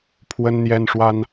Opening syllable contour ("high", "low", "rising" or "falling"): high